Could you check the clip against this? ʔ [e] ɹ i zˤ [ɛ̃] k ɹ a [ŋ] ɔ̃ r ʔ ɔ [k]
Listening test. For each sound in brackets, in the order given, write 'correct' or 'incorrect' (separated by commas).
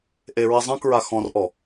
correct, correct, incorrect, incorrect